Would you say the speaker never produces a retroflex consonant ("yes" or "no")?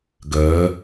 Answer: yes